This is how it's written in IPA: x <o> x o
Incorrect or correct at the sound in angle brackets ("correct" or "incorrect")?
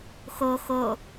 correct